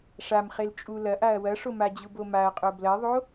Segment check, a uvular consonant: present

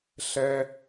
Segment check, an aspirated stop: absent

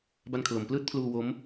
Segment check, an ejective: absent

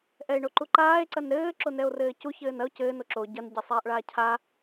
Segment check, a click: present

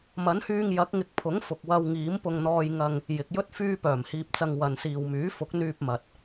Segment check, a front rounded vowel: present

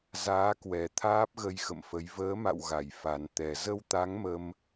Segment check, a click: absent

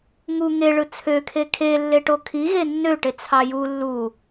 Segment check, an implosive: absent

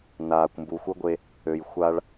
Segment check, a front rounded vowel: present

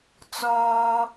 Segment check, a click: absent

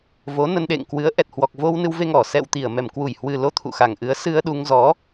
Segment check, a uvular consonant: absent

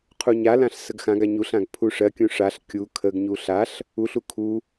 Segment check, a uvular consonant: present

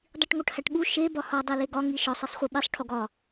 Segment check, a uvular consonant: present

